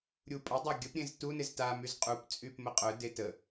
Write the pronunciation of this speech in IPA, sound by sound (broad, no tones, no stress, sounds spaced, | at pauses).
ɾʲ u pʼ ə dˤ a ɡʲ ə p ɾʲ ẽ z t u n ɪ z t a m y z qʼ u p t͡sʼ y p m ə qʼ œ d e t ə